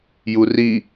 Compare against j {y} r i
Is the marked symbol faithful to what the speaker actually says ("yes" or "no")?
no